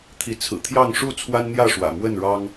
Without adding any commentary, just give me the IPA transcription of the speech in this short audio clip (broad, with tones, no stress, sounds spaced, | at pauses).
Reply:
t̪ʰ i˨˦ t͡sʰ ɹ̩˨˩ t̪ʰ j ɑ˥˨ ŋ ʂ u˥˨ t͡sʰ w a˦ n n̪ j ä˥˨ ʂ w ä̰˨˩ m w ə˥˨ n ɻ ɑ˦ ŋ